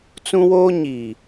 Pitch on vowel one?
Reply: high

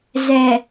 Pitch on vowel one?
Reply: low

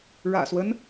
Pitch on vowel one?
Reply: low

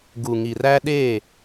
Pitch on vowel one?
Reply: low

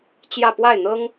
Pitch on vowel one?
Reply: falling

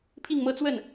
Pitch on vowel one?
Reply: falling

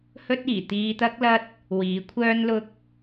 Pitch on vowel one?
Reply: high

